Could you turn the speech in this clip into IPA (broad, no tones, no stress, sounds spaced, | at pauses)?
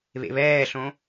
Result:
β ḛ β ɛː ɬ õ